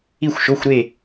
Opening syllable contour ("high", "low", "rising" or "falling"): falling